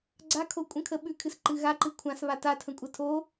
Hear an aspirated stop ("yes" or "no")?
yes